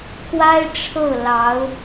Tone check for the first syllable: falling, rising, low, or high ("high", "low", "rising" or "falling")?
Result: high